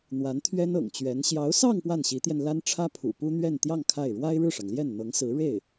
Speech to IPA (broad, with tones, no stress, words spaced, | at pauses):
n̪wa˧˥nt̪ʰɥɛ˥nɤ̰˨˩ŋt͡ɕɥɛ˧˥n ɕjɑ˧˥ʊ̯sɑ˥˧ŋ pwa˥˩nɕi˧˥t̪jɛ˧n la˥n ʈ͡ʂʰä˥pʰṵ˨˩pu˥ n̪ɥɛ˥˧nt̪jɑ˥˧ŋ kʰa˥˩ɪ̯ ɻwa˥ɪ̯ɻɻ̩˥˩ʂɑ˩ŋ ljɛ˥˩nn̪ɤ˧˥ŋsɹ̩˧˥ ɻe˥˩ɪ̯